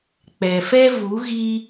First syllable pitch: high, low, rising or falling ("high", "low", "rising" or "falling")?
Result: low